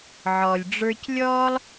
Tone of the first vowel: low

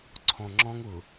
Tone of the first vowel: low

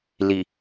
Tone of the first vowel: low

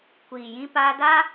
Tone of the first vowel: low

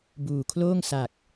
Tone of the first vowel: low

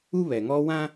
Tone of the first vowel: high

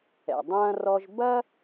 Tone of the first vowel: low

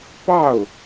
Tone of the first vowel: falling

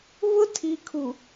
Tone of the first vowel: high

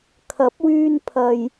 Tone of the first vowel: rising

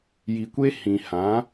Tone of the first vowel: low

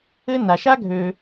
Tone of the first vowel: high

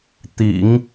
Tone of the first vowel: low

